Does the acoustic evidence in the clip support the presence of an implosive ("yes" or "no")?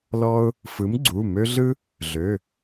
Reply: no